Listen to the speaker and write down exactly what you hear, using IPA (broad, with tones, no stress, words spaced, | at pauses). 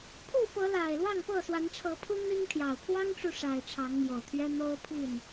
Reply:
pʰu˥˨fɤ˨˦ la˨˩ɪ̯lwɑ˥˨ŋ pɤ˥˨swa˨˦nʈ͡ʂʰɤ˨˦pʰu˦ n̪i˦ŋt̪ʰjɑ˨˩ʊ̯ pʰwɑ˦ŋʈ͡ʂu˨ ʂa˨˩ɪ̯ ʈ͡ʂʰɑ˨˦ŋmjo˨˩ʊ̯t̪ʰɥɛ˦ n̪o˦ʊ̯pʰi˥˨n